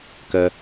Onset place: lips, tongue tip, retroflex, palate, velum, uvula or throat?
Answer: velum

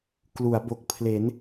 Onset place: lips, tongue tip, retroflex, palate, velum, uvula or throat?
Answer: velum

